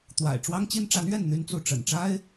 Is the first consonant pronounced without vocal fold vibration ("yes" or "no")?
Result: yes